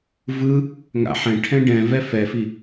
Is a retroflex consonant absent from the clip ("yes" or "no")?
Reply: no